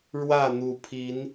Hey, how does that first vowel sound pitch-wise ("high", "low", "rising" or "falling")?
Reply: falling